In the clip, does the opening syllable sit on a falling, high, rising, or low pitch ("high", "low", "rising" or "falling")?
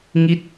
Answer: falling